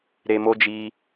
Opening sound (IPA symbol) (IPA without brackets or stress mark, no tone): ɾ